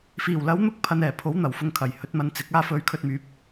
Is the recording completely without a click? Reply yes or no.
yes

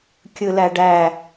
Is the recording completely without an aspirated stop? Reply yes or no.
yes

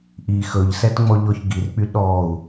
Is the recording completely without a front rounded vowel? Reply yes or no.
no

